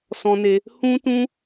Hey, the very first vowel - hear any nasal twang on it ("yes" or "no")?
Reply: yes